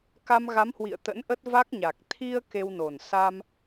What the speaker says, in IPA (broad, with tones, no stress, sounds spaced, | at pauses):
k a˧ m ɣ a˨˦ m h w ḭ˧˨ ə̯ t̪ ə̰˧˥ n ʔ ə˦˥ t̚ v a˦˥ k̚ ɲ a˨˩ k̚ t̪ʰ i˧ ə̯ k e˧ w n o˨˩ n s a˧ m